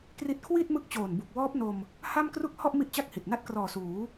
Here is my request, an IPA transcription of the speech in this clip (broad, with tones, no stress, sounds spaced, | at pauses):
k r i˥˩ t̚ kʰ w i˥˩ t̚ m ɯ˦˥ k̚ t͡ɕ oː˨˩ n b u˨˩ k̚ w ɔː˦˥ p̚ n o˧ m | h a˥˩ m k r u˥˩ k̚ h ɔ˥˩ ʔ m i˥˩ ʔ t͡ɕ a˥˩ k̚ h i˨˩ t̚ n a˥˩ t̚ k r ɔː˨˩ s uː˩˦